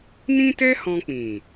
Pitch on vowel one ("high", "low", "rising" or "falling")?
high